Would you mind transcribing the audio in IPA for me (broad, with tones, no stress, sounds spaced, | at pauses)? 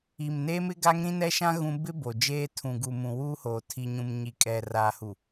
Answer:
i˨ m n eː˦ m ɪ˦ ɡ a˦ ŋ ɾ ĩ˦ n ɛ˦ ʃ ã˦ ɣ ũ˦ b ɪ˦ b o˨ d͡ʒ eː˦ tʰ ũ˨ ɡ u˨ m ũ˨ w uː˦ h oː˨ tʰ i˨ ɲ ũ˨ m ɲ i˨ kʼ ɛ˨ r aː˨ h u˨